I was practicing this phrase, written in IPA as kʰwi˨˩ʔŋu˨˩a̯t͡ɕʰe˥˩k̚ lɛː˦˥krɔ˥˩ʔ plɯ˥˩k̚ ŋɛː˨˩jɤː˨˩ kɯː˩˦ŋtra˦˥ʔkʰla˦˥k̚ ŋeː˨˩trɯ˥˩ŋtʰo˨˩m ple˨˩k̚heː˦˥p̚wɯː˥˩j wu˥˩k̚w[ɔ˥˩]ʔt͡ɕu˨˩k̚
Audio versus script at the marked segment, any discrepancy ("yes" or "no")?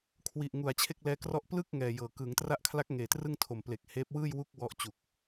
yes